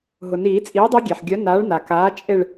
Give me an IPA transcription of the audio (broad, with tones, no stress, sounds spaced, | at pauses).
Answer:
ɦ ʊ˩ n iː˨˩˦ t͡sʼ iː˨˥ dˤ e˦˥ ɡʲ e˩ ħ ɡʲ œ˨˥ n aː˨˥ ɭ n a˩ k aː˨˥ t͡ʃʼ e˦˨ ɭ